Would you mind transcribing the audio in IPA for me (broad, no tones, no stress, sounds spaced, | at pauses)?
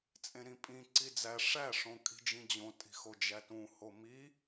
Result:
t͡sʼ ẽ ɾ ĩ pʼ ĩ ǀ i d͡z æ ʂ æ ʂ õ kʼ i̤ d͡ʒ ĩ d͡ʑ õ tʼ i̤ x o d͡ʒ æ t ũ h o m i